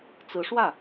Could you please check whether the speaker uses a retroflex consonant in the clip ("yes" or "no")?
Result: yes